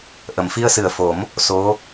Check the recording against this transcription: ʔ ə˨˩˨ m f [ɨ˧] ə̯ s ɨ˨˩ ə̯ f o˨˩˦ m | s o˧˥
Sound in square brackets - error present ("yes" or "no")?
yes